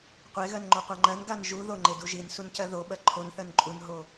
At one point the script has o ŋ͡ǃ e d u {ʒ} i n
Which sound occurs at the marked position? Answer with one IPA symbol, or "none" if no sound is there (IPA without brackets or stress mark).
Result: ʒ